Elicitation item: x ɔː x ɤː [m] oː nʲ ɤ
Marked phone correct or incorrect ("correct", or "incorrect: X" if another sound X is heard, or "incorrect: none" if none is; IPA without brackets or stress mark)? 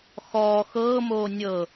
correct